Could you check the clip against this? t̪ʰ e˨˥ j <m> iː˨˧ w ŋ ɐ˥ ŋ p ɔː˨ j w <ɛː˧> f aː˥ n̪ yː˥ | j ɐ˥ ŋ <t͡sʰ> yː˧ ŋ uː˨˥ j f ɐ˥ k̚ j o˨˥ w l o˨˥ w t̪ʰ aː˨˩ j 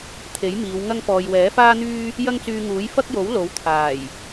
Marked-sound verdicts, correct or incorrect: correct, incorrect: ɛː˨˥, incorrect: t͡s

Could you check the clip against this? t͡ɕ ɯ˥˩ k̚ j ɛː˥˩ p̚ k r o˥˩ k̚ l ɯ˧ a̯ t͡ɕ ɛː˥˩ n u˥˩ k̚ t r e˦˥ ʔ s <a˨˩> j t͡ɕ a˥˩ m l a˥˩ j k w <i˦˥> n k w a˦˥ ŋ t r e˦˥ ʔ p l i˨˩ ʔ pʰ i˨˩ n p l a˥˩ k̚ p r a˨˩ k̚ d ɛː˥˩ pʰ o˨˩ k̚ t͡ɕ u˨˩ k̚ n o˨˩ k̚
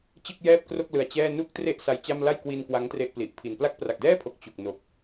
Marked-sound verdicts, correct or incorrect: incorrect: a˦˥, incorrect: i˧

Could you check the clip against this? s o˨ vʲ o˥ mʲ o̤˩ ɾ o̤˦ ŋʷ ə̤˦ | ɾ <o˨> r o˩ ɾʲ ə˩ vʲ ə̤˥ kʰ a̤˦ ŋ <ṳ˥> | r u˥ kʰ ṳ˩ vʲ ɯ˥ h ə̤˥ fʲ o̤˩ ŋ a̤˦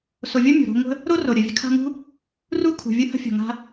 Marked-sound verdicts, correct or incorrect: incorrect: o˥, correct

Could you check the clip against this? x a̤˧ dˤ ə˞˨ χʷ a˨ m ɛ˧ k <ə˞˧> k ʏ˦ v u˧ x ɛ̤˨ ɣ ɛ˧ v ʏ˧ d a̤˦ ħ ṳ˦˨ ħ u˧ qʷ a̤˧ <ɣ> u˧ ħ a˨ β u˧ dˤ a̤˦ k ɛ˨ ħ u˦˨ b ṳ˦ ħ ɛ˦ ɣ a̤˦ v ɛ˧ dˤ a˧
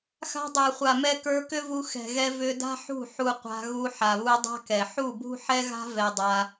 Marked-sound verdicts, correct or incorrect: correct, correct

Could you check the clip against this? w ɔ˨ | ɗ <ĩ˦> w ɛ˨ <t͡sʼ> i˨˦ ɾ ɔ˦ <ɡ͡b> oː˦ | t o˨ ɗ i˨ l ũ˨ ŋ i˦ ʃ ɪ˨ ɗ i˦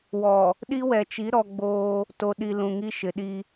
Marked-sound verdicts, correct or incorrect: incorrect: i˦, incorrect: t͡ʃ, correct

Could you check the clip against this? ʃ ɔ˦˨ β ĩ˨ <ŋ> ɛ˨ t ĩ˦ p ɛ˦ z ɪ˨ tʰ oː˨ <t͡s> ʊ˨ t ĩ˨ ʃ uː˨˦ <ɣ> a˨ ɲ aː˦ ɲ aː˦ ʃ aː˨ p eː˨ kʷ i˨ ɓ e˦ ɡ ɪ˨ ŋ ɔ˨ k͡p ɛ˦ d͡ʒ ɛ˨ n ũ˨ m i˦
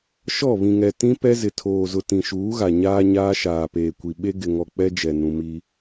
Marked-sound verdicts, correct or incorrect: correct, incorrect: z, correct

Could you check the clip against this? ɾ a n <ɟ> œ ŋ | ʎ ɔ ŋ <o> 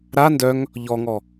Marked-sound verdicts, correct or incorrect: incorrect: d, incorrect: ɔ

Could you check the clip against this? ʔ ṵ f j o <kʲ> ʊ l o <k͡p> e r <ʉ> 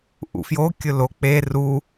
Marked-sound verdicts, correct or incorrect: correct, correct, incorrect: u

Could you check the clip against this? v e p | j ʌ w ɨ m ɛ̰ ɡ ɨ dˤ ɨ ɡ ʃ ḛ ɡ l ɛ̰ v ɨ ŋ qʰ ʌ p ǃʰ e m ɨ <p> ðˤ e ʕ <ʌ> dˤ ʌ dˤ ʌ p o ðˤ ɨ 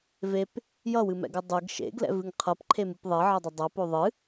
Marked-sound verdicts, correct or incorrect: correct, correct

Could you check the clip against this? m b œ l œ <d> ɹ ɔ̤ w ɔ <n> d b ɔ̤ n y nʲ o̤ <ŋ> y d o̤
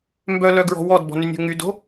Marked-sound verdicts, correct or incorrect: incorrect: ɡ, incorrect: none, correct

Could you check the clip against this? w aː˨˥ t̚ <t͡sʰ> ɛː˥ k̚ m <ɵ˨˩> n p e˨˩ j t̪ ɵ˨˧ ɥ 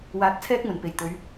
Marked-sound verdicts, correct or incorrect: correct, correct

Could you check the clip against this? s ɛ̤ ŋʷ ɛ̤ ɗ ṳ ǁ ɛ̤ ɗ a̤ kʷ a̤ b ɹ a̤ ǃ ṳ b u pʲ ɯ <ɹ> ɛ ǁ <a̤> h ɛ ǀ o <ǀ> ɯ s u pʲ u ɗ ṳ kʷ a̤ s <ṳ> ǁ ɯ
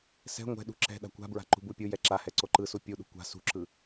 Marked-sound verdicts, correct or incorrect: incorrect: j, incorrect: a, incorrect: ǃ, correct

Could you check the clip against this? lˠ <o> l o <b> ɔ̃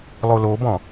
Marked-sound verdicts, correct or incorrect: correct, correct

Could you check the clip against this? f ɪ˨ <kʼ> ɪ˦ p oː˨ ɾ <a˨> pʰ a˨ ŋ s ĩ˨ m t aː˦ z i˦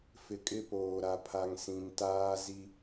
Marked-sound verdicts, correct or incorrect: correct, correct

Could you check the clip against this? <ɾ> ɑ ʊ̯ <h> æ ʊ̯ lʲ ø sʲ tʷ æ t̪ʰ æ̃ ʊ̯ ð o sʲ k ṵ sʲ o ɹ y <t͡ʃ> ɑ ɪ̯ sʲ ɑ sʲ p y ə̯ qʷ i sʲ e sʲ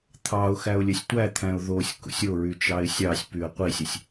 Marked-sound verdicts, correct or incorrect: incorrect: t̪ʰ, incorrect: x, correct

